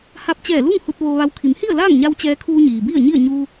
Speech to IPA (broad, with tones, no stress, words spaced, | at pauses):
ha˧p̚t͡ɕɛː˧˩lu˥˨ŋ hu˧t̚ ʋoː˧ʋa˧w kʰi˩˧mhi˥˨ə̯laː˥˨ŋɲa˧w t͡ɕɛː˧kʰuː˧ɲiː˩bi˥˨ə̯ ɲi˥˨ə̯ ɲuː˧